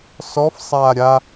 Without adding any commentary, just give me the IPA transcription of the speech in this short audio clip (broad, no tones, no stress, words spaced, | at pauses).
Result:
sɔf sˤaːɾʲa